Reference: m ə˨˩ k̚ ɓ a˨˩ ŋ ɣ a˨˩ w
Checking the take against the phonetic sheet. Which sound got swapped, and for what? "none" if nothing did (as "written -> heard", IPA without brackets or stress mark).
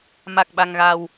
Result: ə˨˩ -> a˨˩